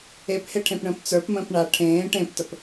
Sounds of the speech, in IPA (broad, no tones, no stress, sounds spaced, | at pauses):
e p h e ʈʰ ẽ p ɳ ə̃ː p t͡s ə˞ p m ə̃ː p ɳ a ʈʰ ẽː ʈ ẽ p t ə p